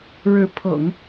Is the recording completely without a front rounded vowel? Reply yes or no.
yes